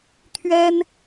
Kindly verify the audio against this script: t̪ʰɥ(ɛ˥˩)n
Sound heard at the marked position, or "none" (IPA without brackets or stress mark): ɛ˥